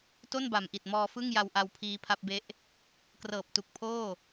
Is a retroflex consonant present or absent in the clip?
absent